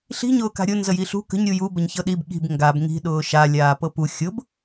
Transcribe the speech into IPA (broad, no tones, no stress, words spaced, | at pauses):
ɬi̤ ɲʊːka̤ɾʲʊ nzəjiɬṳ kə̤ɲ ɾʲuju bəɲçɤɗib ɠi̤b ŋɡab ŋi̤ ɗʊːʃa lʲaːpɤpu xʲʊb